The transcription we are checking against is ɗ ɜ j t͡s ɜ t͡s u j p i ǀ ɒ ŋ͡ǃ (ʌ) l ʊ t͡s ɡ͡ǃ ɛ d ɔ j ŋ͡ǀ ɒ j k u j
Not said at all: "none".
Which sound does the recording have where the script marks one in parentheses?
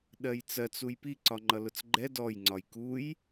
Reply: ʌ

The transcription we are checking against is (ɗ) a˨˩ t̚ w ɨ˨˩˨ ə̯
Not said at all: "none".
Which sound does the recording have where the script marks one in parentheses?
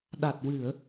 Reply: ɗ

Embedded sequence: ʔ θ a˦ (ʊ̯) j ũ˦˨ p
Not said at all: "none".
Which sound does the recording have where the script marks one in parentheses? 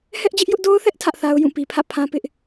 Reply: ʊ̯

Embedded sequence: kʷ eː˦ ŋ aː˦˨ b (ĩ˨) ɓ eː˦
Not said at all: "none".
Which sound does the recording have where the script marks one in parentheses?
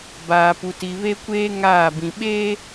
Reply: ĩ˨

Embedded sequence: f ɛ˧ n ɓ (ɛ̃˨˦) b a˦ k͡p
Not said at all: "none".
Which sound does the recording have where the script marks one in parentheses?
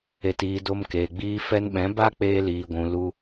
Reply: ɛ̃˨˦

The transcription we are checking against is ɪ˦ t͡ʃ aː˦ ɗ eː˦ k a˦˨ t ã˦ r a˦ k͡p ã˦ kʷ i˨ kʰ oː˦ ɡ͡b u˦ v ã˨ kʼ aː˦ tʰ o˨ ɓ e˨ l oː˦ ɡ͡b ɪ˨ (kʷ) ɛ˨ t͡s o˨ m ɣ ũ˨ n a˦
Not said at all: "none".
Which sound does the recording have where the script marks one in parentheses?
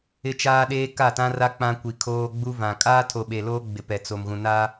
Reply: p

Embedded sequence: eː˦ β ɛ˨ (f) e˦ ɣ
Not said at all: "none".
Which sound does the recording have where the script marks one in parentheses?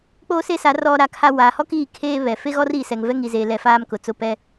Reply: f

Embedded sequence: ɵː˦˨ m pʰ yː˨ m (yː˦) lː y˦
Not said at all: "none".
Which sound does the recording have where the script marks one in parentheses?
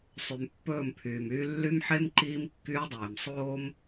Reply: yː˦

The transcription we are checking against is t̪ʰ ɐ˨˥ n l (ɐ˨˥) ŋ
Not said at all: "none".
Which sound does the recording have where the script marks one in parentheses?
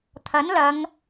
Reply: ɐ˨˧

